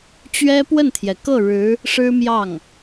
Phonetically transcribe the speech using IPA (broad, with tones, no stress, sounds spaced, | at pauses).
t͡ɕ ɥ ɛ˥ p w ə˥˩ n t̪ʰ j ɛ˩ k ɤ˥˩ ɻ ɻ̩˧˥ | ʂ ɻ̩˥ m j ɑ˥˩ ŋ